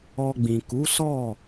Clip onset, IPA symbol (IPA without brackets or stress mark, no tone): ɔ